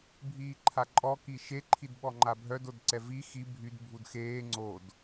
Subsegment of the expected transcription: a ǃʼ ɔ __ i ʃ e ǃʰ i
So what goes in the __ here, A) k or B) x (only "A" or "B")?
A